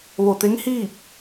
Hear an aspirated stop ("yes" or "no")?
no